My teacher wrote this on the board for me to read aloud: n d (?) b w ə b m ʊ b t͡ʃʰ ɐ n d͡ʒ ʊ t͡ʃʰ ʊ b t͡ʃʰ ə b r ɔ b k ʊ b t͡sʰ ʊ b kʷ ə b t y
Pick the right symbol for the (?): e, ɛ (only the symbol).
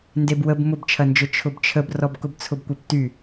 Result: e